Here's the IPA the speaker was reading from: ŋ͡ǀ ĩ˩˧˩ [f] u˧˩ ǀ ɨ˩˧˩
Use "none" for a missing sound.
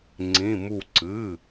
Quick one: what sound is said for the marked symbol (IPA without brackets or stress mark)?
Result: m